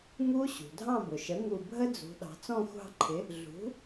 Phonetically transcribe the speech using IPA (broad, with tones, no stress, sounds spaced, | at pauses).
ŋ u˦˥ ɕ ṳ˩ dʱ ɑ̃˥˨ b ʊ˩ ʃ ə˩˥ ŋ u˧˩ bʱ ə˦˥ d͡z ṳ˩˧ ɗ ɑ̤˩˧ t͡s ɔ̃˥˨ xʷ ɑ̤˥˨ ǃʰ ɪ˩˥ | ɮ ṳ˩˥